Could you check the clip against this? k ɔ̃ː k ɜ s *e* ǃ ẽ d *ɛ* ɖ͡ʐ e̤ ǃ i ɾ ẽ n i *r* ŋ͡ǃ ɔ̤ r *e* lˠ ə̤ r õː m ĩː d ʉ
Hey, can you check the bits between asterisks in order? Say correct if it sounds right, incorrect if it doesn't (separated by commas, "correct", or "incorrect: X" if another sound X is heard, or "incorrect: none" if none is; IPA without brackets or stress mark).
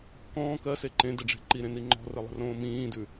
correct, incorrect: ɘ, incorrect: none, incorrect: ɘ